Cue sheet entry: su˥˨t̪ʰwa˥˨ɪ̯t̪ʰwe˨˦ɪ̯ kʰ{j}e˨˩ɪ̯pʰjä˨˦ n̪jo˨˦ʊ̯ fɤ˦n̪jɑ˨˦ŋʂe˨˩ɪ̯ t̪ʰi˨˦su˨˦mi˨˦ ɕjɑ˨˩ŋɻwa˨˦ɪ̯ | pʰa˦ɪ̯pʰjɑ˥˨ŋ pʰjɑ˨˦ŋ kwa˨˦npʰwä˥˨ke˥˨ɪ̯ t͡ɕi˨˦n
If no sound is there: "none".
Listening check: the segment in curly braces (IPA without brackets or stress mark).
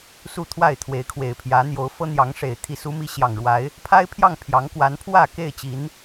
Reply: w